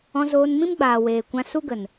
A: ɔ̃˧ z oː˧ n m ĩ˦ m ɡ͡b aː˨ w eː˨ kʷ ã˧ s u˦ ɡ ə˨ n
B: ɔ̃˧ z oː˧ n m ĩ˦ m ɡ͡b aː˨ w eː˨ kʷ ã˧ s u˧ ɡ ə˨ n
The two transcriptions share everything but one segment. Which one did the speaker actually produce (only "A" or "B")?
A